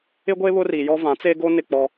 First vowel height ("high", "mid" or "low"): high